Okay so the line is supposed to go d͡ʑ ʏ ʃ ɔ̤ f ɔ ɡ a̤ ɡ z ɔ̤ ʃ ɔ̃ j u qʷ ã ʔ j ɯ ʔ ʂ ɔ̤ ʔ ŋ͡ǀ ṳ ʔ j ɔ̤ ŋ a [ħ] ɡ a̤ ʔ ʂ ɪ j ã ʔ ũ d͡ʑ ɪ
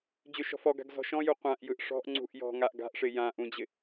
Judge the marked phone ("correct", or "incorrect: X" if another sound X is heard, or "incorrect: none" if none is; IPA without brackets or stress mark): incorrect: ʔ